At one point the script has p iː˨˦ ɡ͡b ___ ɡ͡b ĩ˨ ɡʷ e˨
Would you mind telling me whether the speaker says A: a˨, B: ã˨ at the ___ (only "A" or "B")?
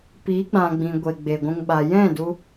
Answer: B